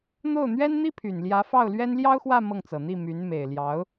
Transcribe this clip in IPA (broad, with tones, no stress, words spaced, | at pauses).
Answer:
n̪o˥˩ʊ̯n̪ɥɛ˥nn̪i˥pʰy˨˩n ljä˧˥fɑ˥˩ʊ̯lɥɛ˥n ljɑ˥ʊ̯xwä˥˧ mɤ˥˩ŋt͡sɤ˨˩n̪i˥˩ my˧˥n me˨˩ɪ̯ljɑ˧˥ʊ̯